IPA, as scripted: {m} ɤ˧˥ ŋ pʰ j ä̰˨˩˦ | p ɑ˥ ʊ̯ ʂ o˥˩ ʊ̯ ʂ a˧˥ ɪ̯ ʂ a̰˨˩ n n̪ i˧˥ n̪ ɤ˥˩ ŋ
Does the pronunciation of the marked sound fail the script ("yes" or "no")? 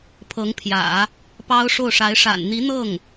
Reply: yes